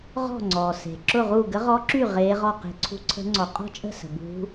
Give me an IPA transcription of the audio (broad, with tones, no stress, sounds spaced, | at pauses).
ʁ ɔ̤˥˩ ŋ͡ǀ ɔː˩ s e̤˩ ǁ ʊ˥˩ ʁ u˥˩ ɡ ə˧˥ ʁ ɔ˧˥ ǁ y˥˩ ʁ eː˧˥ ʁ ɔ˥˩ q e̤˧˥ ǀʰ ṳ˧˥ ǀʰ ə̤˧˥ ŋ͡ǀ ɔ˩ qʼ ɔ̤˥˩ t͡ʃʼ ə̤˥˩ s ə̤˩ b ṳ˧˥